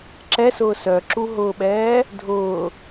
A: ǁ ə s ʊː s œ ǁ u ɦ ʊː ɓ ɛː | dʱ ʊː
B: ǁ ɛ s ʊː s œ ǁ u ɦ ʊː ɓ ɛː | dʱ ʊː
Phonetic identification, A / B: B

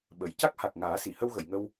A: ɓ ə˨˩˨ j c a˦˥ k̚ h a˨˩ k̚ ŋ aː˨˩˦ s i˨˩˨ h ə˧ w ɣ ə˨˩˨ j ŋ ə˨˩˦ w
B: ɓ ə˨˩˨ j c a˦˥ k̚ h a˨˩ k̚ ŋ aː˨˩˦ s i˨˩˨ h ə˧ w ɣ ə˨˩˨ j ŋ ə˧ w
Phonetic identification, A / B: B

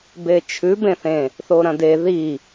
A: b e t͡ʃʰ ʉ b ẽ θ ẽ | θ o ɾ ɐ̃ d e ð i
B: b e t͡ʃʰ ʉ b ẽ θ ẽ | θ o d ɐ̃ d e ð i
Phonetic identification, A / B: A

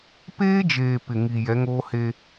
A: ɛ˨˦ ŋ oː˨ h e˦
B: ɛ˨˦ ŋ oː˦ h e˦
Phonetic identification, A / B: B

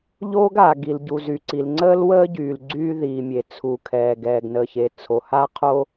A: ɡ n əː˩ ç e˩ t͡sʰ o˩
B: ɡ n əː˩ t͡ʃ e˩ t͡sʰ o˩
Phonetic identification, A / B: A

